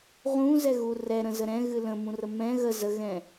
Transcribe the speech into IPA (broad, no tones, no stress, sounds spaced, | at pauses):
ʁ ũ z ɛ ɣ u r ɛ ɾ ə̃ z ə ɾ ɛ̃ ɣ ɨ l ə̃ m ũ r ə m ɛ̃ ɣ ə z ə ɣ ɛ̃